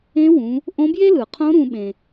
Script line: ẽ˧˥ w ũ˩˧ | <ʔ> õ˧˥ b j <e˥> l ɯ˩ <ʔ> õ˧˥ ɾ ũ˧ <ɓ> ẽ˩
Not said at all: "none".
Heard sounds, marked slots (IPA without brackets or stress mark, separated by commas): ʔ, e˥, qʰ, ɓ